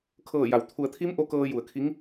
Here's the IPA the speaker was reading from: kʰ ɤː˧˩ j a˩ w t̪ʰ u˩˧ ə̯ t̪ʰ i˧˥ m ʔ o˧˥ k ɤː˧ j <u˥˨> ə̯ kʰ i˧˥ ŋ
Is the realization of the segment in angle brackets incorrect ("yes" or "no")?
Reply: yes